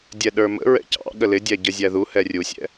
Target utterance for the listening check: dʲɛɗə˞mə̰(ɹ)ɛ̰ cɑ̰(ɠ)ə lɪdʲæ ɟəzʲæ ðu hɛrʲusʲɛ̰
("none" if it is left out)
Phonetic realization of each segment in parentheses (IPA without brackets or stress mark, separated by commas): ɹ, ɠ